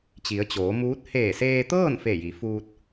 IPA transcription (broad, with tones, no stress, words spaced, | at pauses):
t͡ɕi˩˧ə̯t͡ɕoː˩˧muː˧˥t̚ heː˧˩seː˧t̪ɤː˥˨n fe˧˩ji˩˧fuː˧t̚